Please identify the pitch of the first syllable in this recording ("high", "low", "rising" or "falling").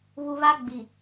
low